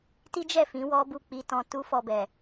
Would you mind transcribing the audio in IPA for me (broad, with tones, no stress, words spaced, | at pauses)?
ti˦d͡ʒɛ˦˨fĩ˨˦ wɔ˦bu˦˨k͡pi˧tɔ̃˧ tu˦fɔ˧bɛ˨